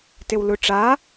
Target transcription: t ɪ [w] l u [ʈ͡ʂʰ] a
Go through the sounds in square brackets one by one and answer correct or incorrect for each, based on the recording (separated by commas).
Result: correct, incorrect